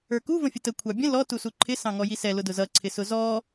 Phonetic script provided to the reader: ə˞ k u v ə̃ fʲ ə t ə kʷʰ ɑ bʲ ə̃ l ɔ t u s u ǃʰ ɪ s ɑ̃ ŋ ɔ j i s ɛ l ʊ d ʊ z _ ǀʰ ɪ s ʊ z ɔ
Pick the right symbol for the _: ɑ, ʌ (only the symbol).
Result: ʌ